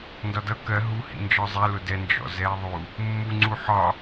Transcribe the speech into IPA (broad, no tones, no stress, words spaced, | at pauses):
ndɒdʌ kɜ ɦu hḭnd͡ʒɒzˤɛ lʊdɛ nd͡ʒɔ̰zɛe̯ðˤu | mːu ŋ͡ǀuħɒ